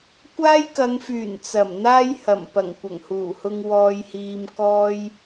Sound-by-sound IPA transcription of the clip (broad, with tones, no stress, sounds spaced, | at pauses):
kʷ aː˥ j k ɐ˨˧ ŋ f yː˨˩ n t͡s ɐ˨˩ m n̪ aː˥ j h ɐ˨˩ m p ɐ˨˩ ŋ kʷ ɐ˨˩ ŋ h uː˨˩ h ʊ˧ ŋ w ɔː˧ j h iː˧ m k ɔː˥ j